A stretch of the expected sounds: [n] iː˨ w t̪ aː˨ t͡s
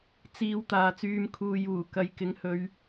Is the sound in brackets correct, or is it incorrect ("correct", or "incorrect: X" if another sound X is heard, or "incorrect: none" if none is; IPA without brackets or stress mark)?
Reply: incorrect: t͡s